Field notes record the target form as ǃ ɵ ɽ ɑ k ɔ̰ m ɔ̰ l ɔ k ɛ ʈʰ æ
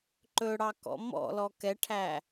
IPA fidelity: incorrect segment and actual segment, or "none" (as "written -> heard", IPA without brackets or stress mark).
none